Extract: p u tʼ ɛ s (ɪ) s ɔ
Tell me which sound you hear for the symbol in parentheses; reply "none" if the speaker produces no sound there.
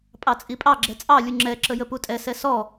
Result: ɛ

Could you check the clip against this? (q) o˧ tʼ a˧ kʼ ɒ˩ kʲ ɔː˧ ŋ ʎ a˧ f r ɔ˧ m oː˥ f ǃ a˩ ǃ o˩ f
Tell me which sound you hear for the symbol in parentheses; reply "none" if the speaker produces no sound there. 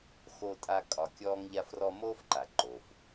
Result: x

